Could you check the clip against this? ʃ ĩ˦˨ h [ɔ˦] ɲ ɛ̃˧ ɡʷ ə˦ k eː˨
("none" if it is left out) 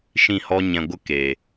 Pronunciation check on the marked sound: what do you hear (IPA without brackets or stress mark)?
ɔ˦